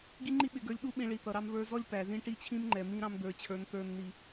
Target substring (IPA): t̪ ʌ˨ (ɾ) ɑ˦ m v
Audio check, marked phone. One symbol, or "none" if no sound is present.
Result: ɾ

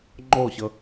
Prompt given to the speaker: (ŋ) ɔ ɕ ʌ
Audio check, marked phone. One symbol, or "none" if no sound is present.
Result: ŋ͡ǃ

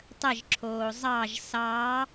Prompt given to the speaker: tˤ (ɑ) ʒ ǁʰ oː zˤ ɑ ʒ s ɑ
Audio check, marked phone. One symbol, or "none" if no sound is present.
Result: ə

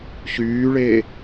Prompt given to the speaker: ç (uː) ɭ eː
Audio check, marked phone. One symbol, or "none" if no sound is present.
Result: yː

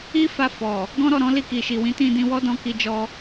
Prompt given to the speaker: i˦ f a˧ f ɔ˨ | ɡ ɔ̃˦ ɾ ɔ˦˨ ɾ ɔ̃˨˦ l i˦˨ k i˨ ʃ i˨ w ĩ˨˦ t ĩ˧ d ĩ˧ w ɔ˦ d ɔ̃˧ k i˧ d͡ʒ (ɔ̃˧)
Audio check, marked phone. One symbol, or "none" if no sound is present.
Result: ɔ˧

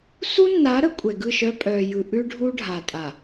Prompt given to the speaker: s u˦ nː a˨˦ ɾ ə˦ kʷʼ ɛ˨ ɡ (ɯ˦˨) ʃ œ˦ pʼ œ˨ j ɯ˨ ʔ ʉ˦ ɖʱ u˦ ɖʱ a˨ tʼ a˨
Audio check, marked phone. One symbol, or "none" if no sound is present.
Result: ɯ˦˨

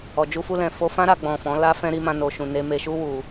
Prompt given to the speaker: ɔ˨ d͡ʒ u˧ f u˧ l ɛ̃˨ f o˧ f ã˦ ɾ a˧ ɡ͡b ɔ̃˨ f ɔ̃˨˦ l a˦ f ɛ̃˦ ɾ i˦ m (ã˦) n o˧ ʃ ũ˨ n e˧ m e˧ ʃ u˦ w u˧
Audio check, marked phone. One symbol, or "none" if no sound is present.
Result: ã˦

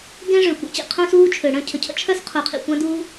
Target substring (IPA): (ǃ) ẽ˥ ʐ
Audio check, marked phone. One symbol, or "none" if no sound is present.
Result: ɡ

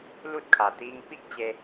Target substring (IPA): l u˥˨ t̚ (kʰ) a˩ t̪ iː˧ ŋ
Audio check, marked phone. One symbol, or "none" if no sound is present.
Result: kʰ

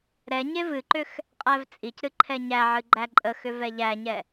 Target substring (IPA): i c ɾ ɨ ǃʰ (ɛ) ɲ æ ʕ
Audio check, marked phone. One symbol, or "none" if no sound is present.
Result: ɛ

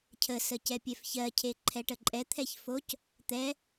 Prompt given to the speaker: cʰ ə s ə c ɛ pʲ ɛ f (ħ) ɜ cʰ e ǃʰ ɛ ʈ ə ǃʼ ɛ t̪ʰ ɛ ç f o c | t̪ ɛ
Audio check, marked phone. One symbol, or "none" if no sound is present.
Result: ç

